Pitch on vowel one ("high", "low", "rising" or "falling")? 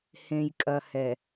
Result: low